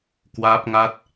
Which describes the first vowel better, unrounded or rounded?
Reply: unrounded